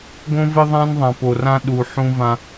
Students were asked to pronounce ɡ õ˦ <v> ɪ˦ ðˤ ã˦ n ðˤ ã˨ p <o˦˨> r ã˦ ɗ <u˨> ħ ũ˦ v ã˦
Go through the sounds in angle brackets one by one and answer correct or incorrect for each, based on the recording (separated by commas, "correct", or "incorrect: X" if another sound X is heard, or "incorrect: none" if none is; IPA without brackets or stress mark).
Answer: correct, incorrect: o˨, correct